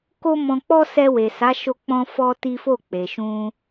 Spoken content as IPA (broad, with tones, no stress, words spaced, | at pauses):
ko˦mɔ̃˧k͡pɔ˦ sɛ˧we˨sa˨˦ ʃo˧k͡pɔ̃˧fɔ˧ ti˦fo˦˨k͡pe˨ ʃũ˧